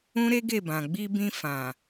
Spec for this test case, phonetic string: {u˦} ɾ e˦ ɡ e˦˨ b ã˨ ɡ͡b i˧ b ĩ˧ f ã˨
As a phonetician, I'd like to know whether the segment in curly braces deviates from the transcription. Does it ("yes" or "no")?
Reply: yes